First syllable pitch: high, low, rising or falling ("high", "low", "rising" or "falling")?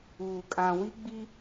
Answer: low